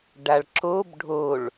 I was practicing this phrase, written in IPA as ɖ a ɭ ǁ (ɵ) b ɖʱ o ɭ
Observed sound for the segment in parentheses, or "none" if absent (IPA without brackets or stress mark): o